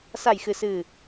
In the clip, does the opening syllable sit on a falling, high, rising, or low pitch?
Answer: low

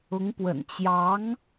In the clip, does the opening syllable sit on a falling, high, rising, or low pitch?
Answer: rising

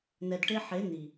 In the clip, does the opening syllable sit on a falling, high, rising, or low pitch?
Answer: low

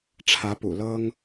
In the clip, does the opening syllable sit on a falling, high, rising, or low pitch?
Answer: rising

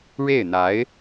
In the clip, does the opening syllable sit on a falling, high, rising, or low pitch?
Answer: falling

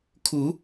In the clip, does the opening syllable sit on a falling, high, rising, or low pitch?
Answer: rising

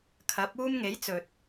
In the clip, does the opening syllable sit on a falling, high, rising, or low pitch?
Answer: rising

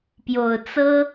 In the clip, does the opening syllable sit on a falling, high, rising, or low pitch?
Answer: low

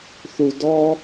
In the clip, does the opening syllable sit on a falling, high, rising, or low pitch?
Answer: low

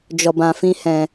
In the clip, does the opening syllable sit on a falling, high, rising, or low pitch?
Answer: low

